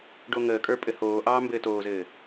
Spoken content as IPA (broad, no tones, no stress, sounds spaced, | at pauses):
ɖ o ŋ əː kʼ ə˞ pʼ ɘ h oː ʔ ɑː m b ɘː t oː z ɘː